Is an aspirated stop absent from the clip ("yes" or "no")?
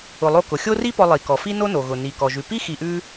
yes